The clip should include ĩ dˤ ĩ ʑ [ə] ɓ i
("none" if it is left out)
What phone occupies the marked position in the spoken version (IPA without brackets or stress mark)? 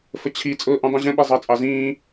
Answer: ə̃